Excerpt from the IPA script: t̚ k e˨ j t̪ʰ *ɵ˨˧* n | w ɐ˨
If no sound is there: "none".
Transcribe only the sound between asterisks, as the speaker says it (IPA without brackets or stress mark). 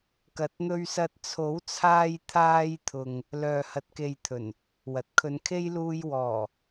ɵ˨˩